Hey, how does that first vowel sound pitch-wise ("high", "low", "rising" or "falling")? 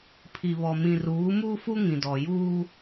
low